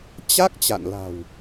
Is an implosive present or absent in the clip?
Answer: absent